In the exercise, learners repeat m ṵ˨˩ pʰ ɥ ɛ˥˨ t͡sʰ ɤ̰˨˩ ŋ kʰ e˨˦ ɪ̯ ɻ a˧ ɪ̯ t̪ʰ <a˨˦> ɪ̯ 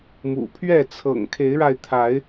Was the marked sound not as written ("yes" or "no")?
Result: no